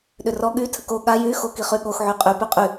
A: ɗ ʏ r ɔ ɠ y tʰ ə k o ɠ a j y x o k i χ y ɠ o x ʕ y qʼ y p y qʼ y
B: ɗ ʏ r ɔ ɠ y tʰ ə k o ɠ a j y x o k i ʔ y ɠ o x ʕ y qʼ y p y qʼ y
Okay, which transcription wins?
A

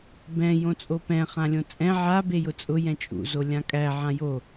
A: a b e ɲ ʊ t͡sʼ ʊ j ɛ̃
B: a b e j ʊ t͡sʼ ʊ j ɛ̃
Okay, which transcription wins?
B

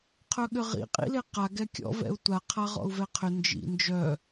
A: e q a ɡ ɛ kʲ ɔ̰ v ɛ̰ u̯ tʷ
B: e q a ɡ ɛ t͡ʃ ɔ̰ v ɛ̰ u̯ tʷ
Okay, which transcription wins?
A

